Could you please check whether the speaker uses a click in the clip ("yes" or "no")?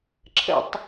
yes